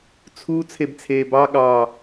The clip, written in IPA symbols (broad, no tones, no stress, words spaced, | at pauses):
t͡sʰu t͡sʰebt͡sʰeːbɑ ɠɑ